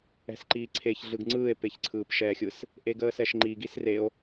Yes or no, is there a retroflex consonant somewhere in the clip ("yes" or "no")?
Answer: no